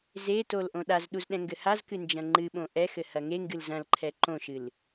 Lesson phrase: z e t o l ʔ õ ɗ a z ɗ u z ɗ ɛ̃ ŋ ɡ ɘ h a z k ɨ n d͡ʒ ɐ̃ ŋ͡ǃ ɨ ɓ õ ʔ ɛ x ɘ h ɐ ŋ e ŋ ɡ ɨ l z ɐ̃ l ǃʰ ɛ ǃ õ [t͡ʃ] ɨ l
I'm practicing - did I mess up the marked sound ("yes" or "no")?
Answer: yes